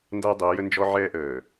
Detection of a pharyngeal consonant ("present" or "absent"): present